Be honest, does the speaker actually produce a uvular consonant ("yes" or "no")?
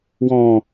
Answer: no